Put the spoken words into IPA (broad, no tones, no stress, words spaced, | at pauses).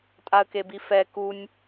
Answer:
tʼaə̯kebifɛ kunʲ